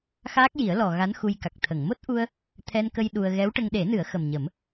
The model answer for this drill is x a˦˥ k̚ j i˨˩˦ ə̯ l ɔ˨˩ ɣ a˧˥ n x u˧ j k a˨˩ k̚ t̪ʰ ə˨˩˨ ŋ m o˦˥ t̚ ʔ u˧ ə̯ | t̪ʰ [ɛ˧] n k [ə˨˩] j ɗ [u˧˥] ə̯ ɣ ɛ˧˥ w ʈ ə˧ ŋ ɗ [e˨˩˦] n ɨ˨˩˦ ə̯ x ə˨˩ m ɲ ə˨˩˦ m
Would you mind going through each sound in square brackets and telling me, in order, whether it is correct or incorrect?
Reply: correct, incorrect: ə˧, incorrect: u˧, correct

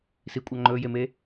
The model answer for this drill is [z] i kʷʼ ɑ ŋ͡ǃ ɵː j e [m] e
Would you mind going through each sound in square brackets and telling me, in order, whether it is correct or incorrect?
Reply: incorrect: s, correct

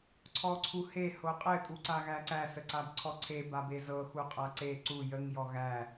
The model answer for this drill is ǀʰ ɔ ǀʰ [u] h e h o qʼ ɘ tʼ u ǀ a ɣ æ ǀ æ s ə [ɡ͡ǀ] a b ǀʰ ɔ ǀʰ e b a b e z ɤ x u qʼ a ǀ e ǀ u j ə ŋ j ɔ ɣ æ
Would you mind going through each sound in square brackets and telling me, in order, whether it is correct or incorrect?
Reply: correct, incorrect: ǀ

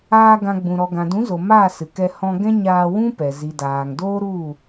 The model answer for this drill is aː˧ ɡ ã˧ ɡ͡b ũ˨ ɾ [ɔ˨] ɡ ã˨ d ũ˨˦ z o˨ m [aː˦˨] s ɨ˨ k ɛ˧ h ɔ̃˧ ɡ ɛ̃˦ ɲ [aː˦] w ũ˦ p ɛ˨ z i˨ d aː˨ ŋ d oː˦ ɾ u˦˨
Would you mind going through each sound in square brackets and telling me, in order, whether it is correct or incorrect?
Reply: correct, correct, incorrect: aː˧

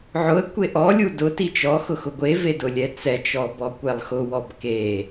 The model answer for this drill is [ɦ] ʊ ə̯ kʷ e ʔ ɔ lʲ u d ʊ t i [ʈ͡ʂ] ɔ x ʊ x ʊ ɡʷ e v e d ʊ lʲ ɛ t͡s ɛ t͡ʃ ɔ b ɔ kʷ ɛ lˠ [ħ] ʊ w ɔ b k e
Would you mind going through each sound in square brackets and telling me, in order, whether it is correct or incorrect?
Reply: incorrect: ʕ, incorrect: t͡ʃ, incorrect: x

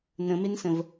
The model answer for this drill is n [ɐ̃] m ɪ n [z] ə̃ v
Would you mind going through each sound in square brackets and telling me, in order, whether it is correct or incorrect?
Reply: incorrect: ə̃, incorrect: s

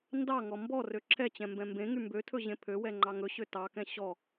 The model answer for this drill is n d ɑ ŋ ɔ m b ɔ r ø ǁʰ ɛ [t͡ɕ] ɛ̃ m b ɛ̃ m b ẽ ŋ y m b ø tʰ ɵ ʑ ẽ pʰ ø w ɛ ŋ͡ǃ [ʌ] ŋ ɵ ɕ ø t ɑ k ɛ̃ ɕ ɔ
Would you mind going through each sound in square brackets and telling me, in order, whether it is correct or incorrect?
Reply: correct, incorrect: ɑ

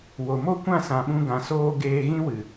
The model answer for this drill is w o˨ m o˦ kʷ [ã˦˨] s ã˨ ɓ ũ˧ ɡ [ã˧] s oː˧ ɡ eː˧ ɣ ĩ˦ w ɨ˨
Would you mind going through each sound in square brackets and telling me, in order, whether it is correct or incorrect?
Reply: correct, incorrect: ã˨

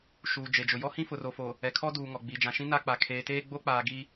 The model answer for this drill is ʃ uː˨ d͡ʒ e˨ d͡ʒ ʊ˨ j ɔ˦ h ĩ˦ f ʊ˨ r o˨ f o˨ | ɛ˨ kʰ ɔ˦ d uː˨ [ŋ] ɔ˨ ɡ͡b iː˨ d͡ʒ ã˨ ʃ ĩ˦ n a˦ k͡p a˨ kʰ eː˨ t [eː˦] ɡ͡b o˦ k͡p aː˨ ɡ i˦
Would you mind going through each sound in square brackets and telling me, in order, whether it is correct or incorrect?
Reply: correct, correct

